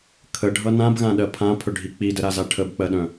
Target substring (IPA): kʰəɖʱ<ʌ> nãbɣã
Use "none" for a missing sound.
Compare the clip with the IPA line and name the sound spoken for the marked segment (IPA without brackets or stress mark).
ʌ